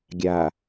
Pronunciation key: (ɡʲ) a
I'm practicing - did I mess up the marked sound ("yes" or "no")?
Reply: no